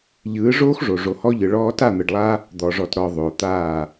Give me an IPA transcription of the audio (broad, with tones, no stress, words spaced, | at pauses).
ʎɯː˨˦ʐoː˦xʐo˨ ʐo˨hɔ˧ʎɯ˨ɭɔː˧ ta˦˨n̪ɯ˨ɖlˠa˦ | d̪ɔ˨ʐɔ˨tɾɔ˨ ðˤo˨t̪aː˦˨